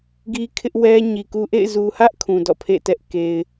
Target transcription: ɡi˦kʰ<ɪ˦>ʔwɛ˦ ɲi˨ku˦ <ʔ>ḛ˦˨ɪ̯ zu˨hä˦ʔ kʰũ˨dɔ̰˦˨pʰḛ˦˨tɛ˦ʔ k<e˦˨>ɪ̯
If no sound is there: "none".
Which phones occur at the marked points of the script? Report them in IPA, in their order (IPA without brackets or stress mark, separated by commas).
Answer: ɪ˦, ʔ, e˨